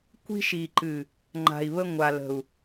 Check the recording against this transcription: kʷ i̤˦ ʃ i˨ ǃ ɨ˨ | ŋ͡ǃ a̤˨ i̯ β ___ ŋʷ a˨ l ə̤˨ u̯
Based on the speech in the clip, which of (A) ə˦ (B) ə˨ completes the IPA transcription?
A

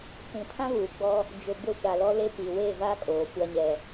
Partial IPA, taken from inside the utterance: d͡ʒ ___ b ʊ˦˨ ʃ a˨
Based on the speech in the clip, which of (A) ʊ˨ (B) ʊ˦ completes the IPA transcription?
A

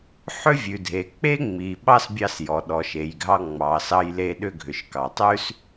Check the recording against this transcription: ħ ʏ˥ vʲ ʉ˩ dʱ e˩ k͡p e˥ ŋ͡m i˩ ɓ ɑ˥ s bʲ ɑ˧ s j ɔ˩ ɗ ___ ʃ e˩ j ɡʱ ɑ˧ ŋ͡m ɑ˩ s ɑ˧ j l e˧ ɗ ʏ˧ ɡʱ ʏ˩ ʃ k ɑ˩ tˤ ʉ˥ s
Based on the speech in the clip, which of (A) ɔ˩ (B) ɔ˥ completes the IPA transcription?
A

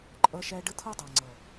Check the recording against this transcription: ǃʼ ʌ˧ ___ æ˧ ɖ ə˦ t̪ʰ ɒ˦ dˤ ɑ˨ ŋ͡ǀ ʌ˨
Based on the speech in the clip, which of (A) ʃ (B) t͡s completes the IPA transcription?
A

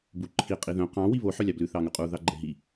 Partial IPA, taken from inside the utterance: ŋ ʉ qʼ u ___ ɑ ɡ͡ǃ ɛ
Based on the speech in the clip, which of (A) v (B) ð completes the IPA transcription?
B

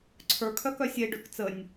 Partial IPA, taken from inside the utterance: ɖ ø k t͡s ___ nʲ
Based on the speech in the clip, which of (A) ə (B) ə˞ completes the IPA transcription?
A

